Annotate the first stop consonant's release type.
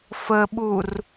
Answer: implosive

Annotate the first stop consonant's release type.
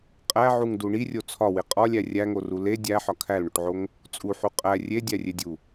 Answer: ejective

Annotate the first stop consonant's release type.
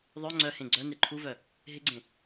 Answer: click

